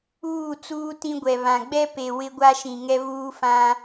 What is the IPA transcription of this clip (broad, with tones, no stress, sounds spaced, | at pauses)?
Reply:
uː˦˨ t͡s uː˦ t ĩ˦ ɡʷ ɛ˨ β ã˨ ɡ͡b ɛ˦ p e˨ w ɪ˦ ɡʷ a˦ ʃ ĩ˨ ŋ ɛ˦ β uː˦ f ã˦